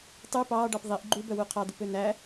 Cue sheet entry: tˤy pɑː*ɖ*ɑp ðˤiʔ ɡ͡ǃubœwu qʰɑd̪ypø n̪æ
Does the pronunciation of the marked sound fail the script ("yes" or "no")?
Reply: no